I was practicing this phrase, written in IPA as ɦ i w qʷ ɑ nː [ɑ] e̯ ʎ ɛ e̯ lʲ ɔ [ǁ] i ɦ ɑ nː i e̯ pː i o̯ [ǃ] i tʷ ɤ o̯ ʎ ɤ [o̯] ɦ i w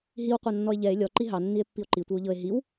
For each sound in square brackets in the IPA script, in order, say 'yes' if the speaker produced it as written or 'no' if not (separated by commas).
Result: no, no, yes, no